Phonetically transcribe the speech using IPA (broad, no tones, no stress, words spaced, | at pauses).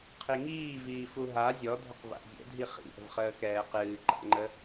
qʰiŋiː viːfuɦa zʲɔ dʱʏqva̰ʔzʲɛ̰ dʱiχḭ ʔə̤vχəːkɛːqɨː ǃa̰ŋ͡ǃə